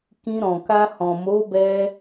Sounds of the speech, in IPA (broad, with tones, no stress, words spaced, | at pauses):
kĩ˧ ɾɔ̃˨ka˧ hɔ̃˨mo˨˦bɛ˧